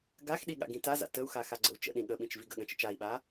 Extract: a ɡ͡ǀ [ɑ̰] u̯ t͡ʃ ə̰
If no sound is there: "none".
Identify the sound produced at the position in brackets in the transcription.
ə̰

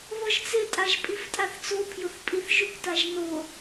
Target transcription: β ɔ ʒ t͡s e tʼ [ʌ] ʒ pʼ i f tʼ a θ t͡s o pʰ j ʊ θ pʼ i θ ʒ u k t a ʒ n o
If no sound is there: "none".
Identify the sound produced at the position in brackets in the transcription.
a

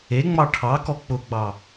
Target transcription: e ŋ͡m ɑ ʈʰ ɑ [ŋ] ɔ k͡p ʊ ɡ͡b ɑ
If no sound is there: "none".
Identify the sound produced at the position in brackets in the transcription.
k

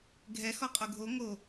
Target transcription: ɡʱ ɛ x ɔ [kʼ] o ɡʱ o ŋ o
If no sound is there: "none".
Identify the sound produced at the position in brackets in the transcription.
qʼ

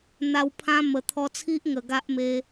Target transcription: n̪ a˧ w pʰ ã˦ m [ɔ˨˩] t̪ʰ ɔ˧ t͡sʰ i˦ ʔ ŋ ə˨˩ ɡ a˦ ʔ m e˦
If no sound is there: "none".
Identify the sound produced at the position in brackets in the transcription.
ə˨˩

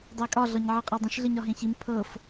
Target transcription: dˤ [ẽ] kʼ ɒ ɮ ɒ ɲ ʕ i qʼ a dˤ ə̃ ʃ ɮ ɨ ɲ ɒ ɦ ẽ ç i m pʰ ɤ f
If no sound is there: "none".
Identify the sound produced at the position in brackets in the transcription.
e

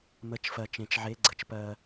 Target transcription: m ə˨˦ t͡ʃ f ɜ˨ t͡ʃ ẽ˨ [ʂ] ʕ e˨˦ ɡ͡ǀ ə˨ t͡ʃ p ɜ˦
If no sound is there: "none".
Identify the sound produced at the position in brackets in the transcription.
t͡ʃ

